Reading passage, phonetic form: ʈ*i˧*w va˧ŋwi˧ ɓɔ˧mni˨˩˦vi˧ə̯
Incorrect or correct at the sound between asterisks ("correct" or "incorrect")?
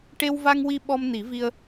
incorrect